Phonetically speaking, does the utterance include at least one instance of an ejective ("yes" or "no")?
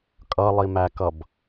yes